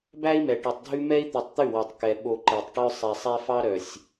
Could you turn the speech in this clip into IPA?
bæ˦i̯mɛ˨ʈy˨tˤdʱʉ˦ mɛ˦i̯t̪ʉ˨tˤt̪ʉ˦˨wɔ˨tˤ kɛ˨ ɓo˨ ǃe˨tˤʈœ˦ sˤɛ˨sˤɛ˦fɑ˦ ɾœ˨sʲ

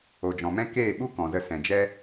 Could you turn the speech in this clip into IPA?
o˨d͡ʒɔ̃˨mɛ̃˦ keː˦˨ɓu˦ kɔ̃˨zə˧ sɛ̃˨d͡ʒɛ˦

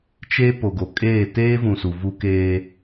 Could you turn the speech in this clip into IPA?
t͡ʃe˦ po˨ɡo˨kʼeː˦˨ teː˦vũ˨ su˨vu˦keː˦

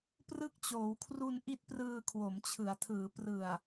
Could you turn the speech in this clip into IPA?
prɯ˦˥k̚t͡ɕoː˩˦wkʰru˧n ʔi˦˥t̚prɯː˧ kʰwo˩˦mt͡ɕʰɯ˩˦a̯tʰɯː˩˦ prɯ˨˩a̯

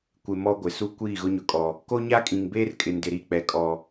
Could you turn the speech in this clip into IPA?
kʷɪ˨ mɔ˦ɡʷɪ˨ su˦ kʷiː˦˨ɣʊ˦ɲʊ˨kʼɔ˨ | ko˦ɲa˦kʼĩ˨ŋbeː˦r kʼɪ˨ndɪ˨ɾi˦˨k͡pɛ˨ kʼɔ˨

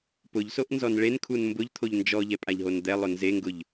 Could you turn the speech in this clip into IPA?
pʊʎsoʔ nzɔnɭenkʰun mbʊʎt̪ʰoʎ nd͡ʒɔʎɛ pʼaʎɦond̪ɛlˠʊ nzeŋɡʊʎ

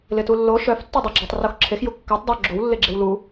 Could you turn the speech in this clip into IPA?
lɪtulːo ʃœf tːedˤɪ ɡ͡ǁœtˤ roxǁʰex jukːœtˤ dˤo ɡ͡ǁow lːɪɡ͡ǁewlu

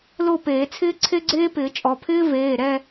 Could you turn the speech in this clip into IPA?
lo˥˧peː˨˩˦t͡sʰɪː˥ ǀʰe˥ɡ͡ǀeː˥ pɪː˨˩˦t͡ʃʼɔ˩˧˩ pʰɪː˥ veː˩˧˩ ɾɛ˥˧

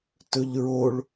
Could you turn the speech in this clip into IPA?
tɵʎɹoɭ

